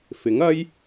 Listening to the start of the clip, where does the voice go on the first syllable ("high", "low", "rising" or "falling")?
rising